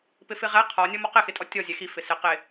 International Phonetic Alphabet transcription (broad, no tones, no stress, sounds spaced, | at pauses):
p ɪ f ɪ ʁ ɛ qʰ ɔ nʲ ɔ m ɔ q ɪ x ɪ tʼ ɔ tʲ ɔ zʲ ɛ x i f ɪ s ɪ q ɪ